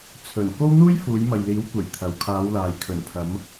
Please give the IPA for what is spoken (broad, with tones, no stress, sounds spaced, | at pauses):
t͡sʰ ɵ˨˩ n k o˥ w n̪ uː˥ j f uː˨˧ j m ɐ˨ j l iː˨˥ w kʷ e˨˩ j t̪ʰ ɐ˨ w kʰ aː˨˧ w l aː˨ j kʰ ɵ˨˩ n pʰ ɐ˨˧ m